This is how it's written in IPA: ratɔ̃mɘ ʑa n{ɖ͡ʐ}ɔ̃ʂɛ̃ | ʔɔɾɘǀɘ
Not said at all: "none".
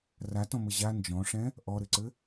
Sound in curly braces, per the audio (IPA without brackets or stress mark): d͡ʒ